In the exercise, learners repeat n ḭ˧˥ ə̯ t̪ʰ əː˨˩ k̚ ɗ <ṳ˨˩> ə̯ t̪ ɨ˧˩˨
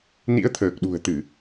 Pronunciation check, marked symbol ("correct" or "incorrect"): correct